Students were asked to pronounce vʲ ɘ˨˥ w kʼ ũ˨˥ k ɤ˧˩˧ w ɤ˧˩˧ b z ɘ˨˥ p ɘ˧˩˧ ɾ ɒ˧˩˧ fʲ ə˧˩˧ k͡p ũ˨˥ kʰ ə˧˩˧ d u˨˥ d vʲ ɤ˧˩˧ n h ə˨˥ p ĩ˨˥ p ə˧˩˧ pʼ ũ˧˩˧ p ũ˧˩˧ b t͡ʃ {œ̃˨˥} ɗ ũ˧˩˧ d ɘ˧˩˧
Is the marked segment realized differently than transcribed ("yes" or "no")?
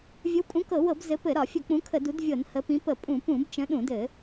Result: yes